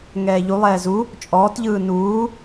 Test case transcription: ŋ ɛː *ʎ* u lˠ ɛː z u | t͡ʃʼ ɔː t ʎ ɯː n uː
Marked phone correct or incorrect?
correct